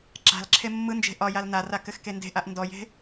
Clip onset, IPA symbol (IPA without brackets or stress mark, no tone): ǁ